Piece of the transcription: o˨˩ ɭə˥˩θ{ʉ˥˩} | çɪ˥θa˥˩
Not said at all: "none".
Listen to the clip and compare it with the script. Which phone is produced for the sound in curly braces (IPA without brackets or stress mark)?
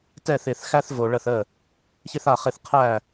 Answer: ə˥˩